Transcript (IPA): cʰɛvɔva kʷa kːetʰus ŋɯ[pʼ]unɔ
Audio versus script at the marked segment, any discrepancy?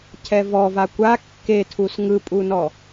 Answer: no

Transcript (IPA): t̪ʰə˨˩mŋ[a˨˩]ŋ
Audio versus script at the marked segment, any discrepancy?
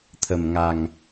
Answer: no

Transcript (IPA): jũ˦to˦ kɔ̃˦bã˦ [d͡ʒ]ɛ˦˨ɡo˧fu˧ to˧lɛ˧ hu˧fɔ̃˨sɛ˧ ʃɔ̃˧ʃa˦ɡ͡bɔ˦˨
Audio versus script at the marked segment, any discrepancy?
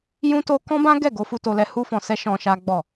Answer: yes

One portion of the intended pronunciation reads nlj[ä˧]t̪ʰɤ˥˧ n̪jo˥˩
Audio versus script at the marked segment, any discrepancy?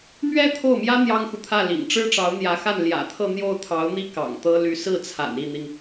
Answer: yes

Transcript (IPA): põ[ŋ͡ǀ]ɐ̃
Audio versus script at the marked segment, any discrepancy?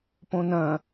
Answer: yes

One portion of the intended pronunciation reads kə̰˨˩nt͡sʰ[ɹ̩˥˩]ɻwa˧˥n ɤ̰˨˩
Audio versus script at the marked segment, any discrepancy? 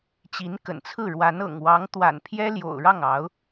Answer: no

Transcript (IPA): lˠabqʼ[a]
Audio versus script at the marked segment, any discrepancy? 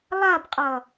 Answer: yes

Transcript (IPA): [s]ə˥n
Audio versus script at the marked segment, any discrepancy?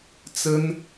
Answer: yes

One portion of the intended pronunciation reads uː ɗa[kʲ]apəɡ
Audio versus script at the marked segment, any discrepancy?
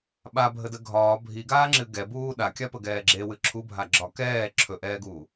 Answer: no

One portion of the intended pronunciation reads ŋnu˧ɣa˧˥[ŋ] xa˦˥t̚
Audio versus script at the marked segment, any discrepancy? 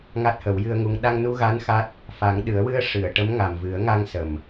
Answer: yes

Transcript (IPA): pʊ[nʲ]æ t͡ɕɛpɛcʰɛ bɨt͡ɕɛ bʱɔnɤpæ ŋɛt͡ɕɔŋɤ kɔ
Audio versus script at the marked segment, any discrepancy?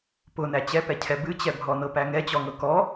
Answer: yes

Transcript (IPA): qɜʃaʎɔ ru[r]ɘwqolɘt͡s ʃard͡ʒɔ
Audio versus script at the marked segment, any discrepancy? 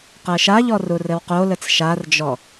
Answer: no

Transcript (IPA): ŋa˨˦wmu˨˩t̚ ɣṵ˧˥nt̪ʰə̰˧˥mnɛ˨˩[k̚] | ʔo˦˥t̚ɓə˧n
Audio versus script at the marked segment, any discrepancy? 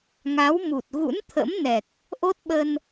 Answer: no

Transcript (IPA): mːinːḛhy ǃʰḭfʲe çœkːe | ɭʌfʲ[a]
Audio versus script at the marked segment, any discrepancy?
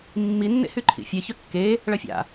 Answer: yes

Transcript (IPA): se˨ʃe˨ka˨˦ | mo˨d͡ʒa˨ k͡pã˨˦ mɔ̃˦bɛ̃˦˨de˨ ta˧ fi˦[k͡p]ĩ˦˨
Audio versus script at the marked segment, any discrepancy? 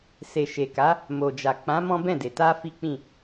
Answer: no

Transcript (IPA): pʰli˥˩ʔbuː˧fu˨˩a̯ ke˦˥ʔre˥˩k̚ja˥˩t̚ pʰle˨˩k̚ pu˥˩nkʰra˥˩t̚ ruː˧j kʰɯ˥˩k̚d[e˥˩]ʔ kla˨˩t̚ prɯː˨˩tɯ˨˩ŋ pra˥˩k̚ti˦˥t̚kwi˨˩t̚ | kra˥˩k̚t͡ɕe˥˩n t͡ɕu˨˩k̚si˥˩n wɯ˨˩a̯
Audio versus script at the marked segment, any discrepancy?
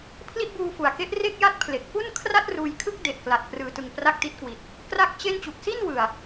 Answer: yes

